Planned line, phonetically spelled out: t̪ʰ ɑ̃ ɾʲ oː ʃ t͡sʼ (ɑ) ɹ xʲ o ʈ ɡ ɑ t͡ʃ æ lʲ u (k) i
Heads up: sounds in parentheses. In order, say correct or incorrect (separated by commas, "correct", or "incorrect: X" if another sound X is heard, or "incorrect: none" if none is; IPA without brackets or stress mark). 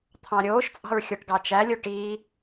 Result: incorrect: ɑ̤, incorrect: ʈ